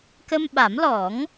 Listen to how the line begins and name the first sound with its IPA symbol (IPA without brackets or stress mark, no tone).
k